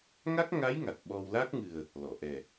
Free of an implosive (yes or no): no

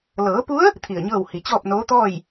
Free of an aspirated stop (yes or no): no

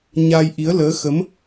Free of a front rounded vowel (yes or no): yes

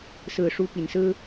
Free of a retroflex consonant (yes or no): no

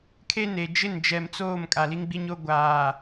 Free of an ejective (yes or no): no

